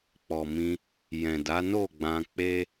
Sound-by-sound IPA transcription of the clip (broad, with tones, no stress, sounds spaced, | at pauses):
k͡p ɔ˨ m ĩ˧ | j ɛ̃˨ d a˨˦ n o˦˨ ɡ͡b ã˧ k͡p e˦